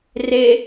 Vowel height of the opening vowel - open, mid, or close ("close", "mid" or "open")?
mid